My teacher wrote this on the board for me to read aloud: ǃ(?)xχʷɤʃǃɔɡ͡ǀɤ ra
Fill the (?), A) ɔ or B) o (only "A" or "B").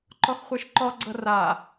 A